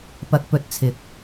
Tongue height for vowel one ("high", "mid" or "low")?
low